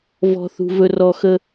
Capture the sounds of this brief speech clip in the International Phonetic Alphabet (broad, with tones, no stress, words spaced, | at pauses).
vɔ̤˨θṳ˨ vɵ˨rɔ˨ xə˦